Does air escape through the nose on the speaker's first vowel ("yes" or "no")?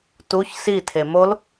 no